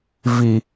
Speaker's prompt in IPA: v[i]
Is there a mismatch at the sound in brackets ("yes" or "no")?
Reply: no